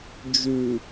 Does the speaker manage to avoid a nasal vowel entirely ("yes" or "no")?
yes